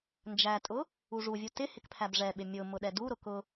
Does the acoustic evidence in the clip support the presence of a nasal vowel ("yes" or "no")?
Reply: no